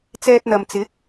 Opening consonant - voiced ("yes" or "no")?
no